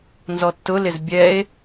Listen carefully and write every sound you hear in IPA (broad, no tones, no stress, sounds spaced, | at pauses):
n z ɔ tː ʊ l ɪ z bʲ ɛ e̯